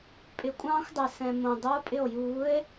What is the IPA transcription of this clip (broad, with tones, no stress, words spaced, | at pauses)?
pʼɪ˨˥kʷʼɑ̃ː˥xʷdˤɛ˨ sɛ̃˨ mõ˨ dˤo˧˥˧pʼɪ˥˩o̯ juː˨˥e̯